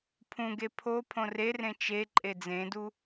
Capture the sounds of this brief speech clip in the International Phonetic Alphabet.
pʰ ũ ɡ e pʰ o pʰ õ r e r ẽ t͡ʃ e ǃʼ e d͡z ẽ d u

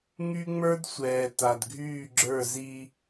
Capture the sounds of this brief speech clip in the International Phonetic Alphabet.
ŋ y˦ ŋ͡m ə˞˦ d sʷ ɛː˨ t a˨ d ɡʱ yː˦˨ ɡ͡ǁ ə˞˦˨ z i˦

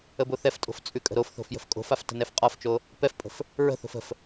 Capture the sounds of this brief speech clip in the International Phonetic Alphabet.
ə b o θ ɛ f tʼ o̤ f t͡sʼ ʉ kʼ ə̤ ɾ o f θ o̤ f j ə̤ f kʼ o̤ f a f t ə̤ n ɛ f qʼ ɒ f t͡ʃ o | p ɛ f pʼ ə̤ f | ɹ ə̤ θ o̤ f ə̤ f

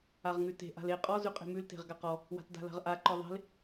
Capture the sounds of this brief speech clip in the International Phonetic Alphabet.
a ʁ ŋ ʉ t e̤ ʔ a̤ l e qʼ ɔ z ʉ qʼ e̤ m ʉ l t e̤ ʁ ɡ a q ɔ | w a̤ t d a̤ l a̤ ʁ ʔ a ǃ ɔ ðˤ e̤ l

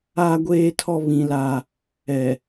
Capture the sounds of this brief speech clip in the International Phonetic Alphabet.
aː˦ ɡʷ eː˦ tʰ ɔ˦ β ĩ˦ l a˦ | ɛ˨

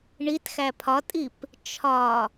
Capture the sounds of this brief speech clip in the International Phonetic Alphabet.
ɳ i t x æ pʰ ɒ tʼ i p | t͡ʃʰ ɒ

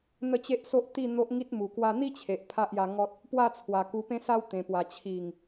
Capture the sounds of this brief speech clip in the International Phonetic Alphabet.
n̪ ə˥˧ t͡ɕ e˦ ʔ s o˦ ʔ t̪ i˥˧ n̪ o˦ ʔ ŋ i˦ t̚ m u˨˩ k w a˧ n̪ i˦ t͡ɕʰ e˨ ʔ pʰ a˦ ʔ j a˧ ŋ ɔ˦ t̚ | p w a˥˧ t͡sʰ w a˨˩ k u˧ p ẽ˦ s a˦ w t̪ ẽ˨˩ p w a˨˩ t͡ɕʰ i˨˩ ŋ

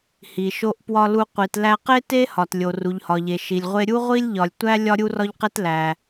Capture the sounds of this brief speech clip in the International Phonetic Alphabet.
h i˩ ʃ o˧ ʔ p w ɒ˧ l u˧ qʷ i˩ t l æ˧ q e˥ t e˥ h ɒ˩ t lʲ o˩ r u˩ ʎ h ɒ˩ ʎ e˩ ʃ i˩ lʲ ʁʷ e˥ ɾʲ u˥ ʁʷ i˥ lʲ ʎ ɒ˩ lʲ tʷ æ˥ lʲ ɒ˥ ɾʲ u˥ r ɒ˥ ʎ q e˥ t l æ˩

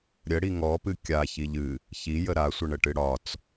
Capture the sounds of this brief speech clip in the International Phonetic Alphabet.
ɾʲ ə ɽ i ŋ ɔ p ɨ kʲ a ç i ʎ ɨ | ç i j ə ɾ a sʷ ə ɳ ə ʈ ɨ ɽ ɒ t͡s

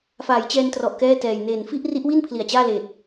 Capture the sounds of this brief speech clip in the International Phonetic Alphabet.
f aː˩˦ j t͡ɕ ɛː˧ n t r ɔ˨˩ ʔ k ɛː˥˩ t ɛː˨˩ j n eː˨˩ n f i˥˩ ʔ r i˦˥ ʔ w i˥˩ n pʰ l i˨˩ a̯ t͡ɕ aː˥˩ l eː˨˩ t̚

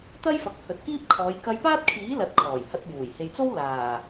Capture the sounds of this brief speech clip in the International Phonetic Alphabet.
t̪ ɐ˥ j f ɐ˨ k̚ h ɵ˨ t̚ k iː˥ p̚ kʰ ɔː˨˧ j k ɐ˧ j p aː˥ t̚ kʰ iː˨˥ l ɐ˨˥ t̚ kʰ ɔː˨˩ j h ɐ˧ t̚ j uː˨˩ j h e˨ j t͡s o˥ w l aː˨˩

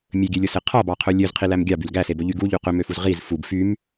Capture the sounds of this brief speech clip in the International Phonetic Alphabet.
mʲ ɵ ɡʲ ø lʲ o s e qʰ ɔ b ɑ qʰ ɵ lʲ ø z qʰ i l æ m ɡʲ ɑ b y l ɡ æ s e b ɵ ʎ y ɡ u ʎ y q ø m ø f u z ʁ i z f u b f y m

